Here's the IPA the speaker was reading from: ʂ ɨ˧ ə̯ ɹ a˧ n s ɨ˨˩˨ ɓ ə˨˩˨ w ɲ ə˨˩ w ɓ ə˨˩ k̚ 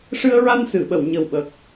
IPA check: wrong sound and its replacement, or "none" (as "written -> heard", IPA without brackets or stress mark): none